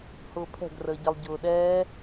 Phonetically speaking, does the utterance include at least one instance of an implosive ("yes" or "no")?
yes